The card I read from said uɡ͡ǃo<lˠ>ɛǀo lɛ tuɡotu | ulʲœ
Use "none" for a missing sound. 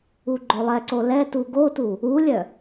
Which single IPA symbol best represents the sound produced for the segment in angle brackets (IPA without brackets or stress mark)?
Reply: lˠ